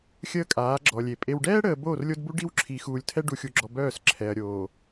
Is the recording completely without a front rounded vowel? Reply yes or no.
no